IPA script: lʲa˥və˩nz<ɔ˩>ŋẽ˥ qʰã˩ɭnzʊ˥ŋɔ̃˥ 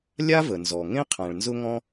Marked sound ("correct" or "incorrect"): correct